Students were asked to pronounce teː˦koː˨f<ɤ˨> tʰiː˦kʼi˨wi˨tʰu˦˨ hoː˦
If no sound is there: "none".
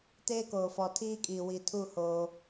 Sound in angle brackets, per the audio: ɔ˨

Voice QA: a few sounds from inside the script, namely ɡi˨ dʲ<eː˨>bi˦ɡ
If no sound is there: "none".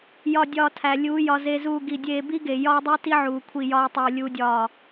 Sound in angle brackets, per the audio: eː˧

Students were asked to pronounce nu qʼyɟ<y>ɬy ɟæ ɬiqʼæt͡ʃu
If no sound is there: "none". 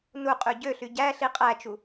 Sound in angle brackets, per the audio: ø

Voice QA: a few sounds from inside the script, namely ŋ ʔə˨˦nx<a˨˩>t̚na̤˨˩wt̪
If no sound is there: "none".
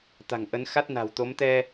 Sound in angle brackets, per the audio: a˦˥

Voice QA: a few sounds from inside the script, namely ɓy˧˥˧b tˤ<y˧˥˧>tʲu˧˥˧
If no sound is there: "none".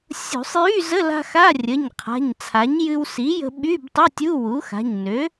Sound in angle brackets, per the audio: y˧˥˧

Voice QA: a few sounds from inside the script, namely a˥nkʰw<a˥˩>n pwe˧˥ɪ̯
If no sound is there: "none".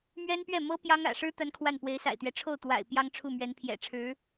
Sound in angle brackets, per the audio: a˥˩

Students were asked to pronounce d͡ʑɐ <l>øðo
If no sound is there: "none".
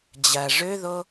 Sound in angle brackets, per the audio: ʐ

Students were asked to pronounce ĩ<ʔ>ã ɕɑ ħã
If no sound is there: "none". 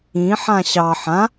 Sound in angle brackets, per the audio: ħ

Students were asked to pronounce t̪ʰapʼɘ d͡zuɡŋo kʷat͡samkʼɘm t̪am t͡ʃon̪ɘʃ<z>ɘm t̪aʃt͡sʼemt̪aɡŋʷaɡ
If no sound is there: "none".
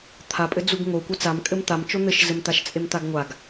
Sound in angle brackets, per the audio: z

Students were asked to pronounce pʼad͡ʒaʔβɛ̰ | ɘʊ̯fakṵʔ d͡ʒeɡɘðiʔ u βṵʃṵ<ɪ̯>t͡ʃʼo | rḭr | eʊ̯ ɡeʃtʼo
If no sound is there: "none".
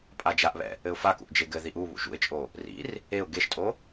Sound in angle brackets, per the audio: ɪ̯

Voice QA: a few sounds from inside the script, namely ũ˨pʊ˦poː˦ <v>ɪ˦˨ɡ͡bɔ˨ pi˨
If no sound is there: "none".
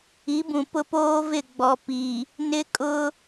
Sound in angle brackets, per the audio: v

